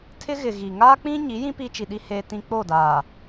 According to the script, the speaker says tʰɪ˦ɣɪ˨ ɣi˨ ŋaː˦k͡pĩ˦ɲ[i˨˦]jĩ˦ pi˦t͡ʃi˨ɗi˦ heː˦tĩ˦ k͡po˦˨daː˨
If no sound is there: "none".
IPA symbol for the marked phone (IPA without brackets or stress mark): i˨˦